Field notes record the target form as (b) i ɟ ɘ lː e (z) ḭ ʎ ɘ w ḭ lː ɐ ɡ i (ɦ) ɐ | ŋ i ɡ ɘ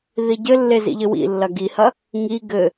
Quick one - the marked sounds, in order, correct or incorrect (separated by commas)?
incorrect, correct, incorrect